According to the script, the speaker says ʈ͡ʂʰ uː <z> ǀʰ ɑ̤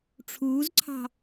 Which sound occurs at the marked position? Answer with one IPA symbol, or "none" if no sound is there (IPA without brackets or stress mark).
z